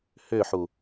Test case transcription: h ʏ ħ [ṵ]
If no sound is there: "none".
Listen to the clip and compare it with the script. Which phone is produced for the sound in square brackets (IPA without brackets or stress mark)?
u